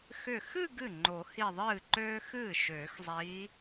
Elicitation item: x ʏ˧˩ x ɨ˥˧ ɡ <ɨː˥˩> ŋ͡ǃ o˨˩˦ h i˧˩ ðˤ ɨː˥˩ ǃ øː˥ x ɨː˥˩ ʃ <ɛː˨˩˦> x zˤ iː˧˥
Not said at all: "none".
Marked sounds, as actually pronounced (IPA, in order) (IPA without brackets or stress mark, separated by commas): ɨ˥˩, øː˨˩˦